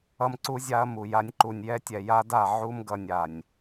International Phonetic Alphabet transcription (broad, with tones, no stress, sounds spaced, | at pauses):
ʌ˦ m ǀ u˦ zʲ a˦ ɐ̯ m u˨ j a˦ nʲ ǃ u˨ nʲ j ɛ˦ tʲ ɛ˨ j a˦ d a˦˨ ʕ u˦ m ɡ ʌ˨ nʲ a˨ nʲ